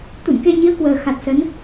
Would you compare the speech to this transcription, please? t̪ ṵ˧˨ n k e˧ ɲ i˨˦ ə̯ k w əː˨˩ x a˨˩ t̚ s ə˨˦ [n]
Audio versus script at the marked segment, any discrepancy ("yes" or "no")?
no